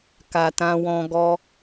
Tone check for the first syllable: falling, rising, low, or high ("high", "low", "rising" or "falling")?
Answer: low